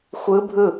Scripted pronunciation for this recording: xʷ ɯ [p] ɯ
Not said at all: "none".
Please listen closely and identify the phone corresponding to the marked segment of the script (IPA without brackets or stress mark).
bʱ